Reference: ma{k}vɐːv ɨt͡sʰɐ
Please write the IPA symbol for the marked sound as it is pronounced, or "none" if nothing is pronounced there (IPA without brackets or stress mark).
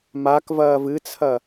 k